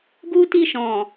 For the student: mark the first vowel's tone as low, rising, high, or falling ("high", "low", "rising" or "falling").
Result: high